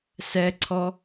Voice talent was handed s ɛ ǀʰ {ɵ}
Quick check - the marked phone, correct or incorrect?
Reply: incorrect